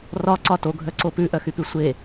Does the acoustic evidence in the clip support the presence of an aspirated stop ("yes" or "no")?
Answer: no